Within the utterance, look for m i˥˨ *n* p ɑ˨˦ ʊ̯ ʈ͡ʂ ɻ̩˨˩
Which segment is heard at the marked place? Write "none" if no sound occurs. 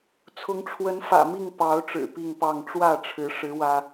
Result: ŋ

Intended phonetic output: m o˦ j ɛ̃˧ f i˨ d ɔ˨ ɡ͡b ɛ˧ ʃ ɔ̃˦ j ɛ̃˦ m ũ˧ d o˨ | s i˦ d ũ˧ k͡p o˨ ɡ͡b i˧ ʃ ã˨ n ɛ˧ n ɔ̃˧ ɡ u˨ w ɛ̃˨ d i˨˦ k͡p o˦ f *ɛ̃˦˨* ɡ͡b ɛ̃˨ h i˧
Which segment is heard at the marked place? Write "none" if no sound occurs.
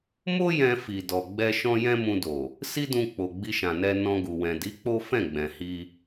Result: ɛ̃˦˨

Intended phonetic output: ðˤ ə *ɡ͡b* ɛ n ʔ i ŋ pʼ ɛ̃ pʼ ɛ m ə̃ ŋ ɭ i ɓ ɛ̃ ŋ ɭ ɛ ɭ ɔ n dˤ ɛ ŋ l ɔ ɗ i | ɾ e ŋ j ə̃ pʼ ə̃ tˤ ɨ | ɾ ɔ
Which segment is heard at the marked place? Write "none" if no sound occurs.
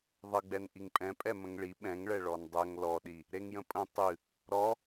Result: ɡ͡b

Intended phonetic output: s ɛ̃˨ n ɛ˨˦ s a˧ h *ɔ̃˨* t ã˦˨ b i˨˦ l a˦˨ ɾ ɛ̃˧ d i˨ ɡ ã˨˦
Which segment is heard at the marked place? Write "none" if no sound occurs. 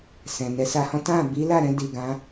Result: ɔ̃˦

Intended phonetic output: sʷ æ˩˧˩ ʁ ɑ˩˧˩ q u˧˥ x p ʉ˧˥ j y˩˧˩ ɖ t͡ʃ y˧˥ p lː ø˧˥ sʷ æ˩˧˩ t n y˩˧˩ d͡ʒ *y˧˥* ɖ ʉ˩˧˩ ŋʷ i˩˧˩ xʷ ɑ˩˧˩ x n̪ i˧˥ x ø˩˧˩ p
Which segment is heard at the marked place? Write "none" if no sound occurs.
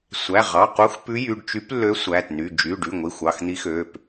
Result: y˩˧˩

